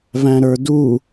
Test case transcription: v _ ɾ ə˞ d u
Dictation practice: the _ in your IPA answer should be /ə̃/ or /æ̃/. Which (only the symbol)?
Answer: æ̃